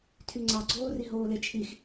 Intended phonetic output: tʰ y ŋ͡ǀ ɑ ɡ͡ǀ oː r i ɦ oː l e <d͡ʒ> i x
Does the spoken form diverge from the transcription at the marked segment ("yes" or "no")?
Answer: yes